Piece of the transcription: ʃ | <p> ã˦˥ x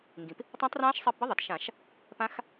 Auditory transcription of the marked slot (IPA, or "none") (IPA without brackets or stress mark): p